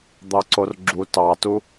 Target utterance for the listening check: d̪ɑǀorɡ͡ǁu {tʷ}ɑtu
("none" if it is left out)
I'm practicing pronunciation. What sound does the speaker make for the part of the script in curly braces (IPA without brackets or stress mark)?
t